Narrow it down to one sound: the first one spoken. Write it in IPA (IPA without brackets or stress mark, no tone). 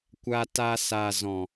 kʷ